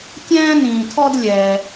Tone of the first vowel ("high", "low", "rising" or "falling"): high